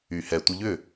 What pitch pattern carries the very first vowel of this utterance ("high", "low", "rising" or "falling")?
low